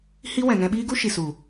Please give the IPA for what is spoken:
h i˦ w ɛ̃˨ ŋ ɛ̃˧ ɓ iː˦ ɡ u˦ ʃ i˨ s u˨

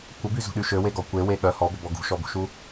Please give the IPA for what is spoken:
kʷ ə b y z ṳ ɗ y ʃ ø w e ɡ ɔ kʷ e w e ɠ œ h ɔ b ə b ɔ ɡ ṳ ʃ ɔ b ṳ ʃ u

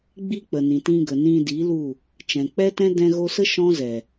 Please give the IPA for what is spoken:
ɡ͡b i˧ k͡p ə˨ n ĩ˨ t ĩ˧ ɡ ə˨ n ĩ˧ d i˨˦ l u˦˨ | t͡ʃ ɛ̃˨ k͡p ɛ˦ t ɛ̃˦ d ɛ̃˧ ɣ o˧ s ə˦ ʃ ɔ̃˦ z ɛ˨

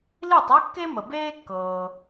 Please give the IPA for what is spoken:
l i˥˩ tˤ e˥ kː e˥ m ə˩ b eː˥ kː ɤː˩

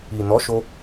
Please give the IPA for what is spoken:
i˨ n ɔ˨˦ ʃ o˧

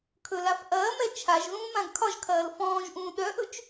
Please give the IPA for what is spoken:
kʰ ɵ l a f ʔ ɐː m ɛ t͡ʃʰ a ʒ ð ũː m ã ɡ kʰ ɒ ʒ kʰ ɐː l f ɔ̃ː ʒ ʔ ũː ɗ œ ʔ ɵ t͡ʃ

